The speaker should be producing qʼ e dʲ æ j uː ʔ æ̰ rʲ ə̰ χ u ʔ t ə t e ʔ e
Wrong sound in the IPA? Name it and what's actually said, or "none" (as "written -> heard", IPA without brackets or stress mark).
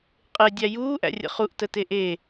none